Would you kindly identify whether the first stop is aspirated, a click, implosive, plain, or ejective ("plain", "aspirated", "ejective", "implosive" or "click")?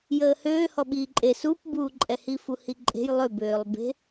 implosive